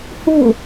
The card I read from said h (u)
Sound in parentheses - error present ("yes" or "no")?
no